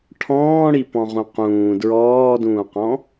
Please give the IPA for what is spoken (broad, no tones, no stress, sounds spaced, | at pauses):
ʈʰ ɔ̃ː ɽ i p ɔ̃ ʁ ũ q ũː d ɹ ɔː d ũː q ɔ̃